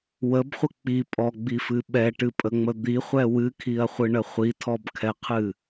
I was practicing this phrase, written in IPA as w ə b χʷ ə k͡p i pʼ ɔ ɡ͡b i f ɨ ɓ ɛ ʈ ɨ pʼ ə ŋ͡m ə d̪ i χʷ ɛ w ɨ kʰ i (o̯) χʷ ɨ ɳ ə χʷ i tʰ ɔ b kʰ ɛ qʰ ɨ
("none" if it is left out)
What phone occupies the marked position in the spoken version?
ɐ̯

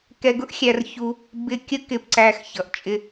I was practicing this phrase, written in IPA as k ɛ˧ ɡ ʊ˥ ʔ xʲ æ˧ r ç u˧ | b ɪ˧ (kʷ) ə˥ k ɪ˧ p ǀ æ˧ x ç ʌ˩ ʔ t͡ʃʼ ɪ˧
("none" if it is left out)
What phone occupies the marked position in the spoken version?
kʲ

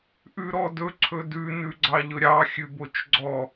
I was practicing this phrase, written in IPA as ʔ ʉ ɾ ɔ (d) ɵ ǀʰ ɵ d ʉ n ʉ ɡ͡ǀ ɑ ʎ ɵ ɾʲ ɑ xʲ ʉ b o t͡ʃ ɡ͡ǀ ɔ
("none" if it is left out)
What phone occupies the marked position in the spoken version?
d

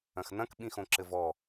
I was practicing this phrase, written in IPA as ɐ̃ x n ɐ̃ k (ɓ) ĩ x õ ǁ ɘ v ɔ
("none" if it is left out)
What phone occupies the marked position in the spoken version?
ɓ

